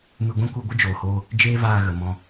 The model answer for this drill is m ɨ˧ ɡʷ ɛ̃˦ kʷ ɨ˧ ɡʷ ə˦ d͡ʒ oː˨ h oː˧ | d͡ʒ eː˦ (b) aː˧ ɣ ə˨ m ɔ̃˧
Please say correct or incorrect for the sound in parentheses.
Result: incorrect